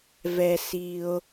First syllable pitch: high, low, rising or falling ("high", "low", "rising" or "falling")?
low